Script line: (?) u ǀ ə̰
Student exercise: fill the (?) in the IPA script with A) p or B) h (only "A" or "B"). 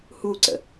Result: B